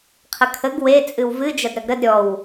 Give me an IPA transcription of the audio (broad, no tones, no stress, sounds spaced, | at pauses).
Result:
qʰ ə kʰ ə ɡ w e t͡sʼ ɨ w v ɨ d͡ʒ ɐ d ɾ ɐ ɡ ɾ ə d ɾʲ ɔ w